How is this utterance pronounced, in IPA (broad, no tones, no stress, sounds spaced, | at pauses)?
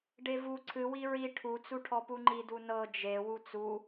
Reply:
ɖ e v u ǀʰ ɨ w i ɹ i ʈʰ u t͡s u ʈʰ ɔ p u ŋ͡ǃ i d u n ɤ d͡ʒ e w u t͡s u